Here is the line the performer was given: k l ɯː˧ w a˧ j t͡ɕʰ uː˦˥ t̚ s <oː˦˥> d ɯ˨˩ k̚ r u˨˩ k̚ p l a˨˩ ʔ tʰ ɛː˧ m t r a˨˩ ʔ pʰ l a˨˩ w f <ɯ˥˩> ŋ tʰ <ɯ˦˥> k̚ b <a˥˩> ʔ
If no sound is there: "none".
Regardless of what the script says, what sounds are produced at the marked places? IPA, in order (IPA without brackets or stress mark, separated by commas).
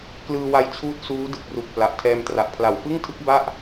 uː˦˥, ɯ˥˩, ɯ˦˥, a˥˩